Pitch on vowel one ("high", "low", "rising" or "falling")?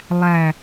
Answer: low